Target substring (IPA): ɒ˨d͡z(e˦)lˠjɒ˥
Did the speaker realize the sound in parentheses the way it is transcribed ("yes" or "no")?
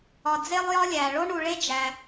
no